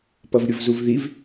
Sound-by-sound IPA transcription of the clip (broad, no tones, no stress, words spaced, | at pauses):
pʌvɾʲʊvzuvðiv